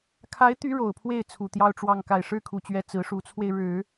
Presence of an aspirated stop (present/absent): present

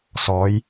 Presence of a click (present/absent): absent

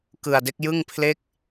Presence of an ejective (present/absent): absent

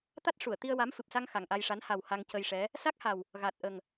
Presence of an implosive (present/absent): absent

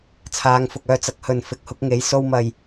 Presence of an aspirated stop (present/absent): present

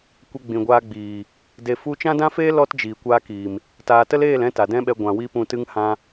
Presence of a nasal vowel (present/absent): present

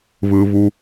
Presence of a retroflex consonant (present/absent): absent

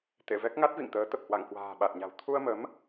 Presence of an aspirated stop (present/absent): present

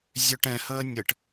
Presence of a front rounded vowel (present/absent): present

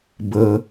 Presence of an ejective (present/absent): absent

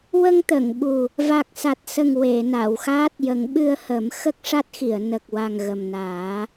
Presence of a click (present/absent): absent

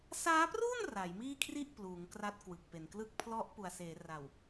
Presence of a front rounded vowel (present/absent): absent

